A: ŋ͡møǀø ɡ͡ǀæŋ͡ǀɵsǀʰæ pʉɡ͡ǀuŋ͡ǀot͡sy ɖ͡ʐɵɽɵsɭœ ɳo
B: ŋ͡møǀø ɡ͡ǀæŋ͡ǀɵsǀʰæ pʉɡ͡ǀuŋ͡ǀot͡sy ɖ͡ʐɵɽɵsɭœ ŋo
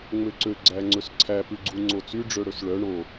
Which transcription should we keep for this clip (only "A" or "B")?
A